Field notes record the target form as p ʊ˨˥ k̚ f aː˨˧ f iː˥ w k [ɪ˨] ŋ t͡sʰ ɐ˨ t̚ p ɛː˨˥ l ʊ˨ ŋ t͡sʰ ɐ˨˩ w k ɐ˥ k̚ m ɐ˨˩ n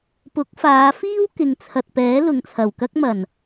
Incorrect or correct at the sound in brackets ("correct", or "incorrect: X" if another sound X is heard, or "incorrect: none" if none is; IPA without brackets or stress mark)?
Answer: correct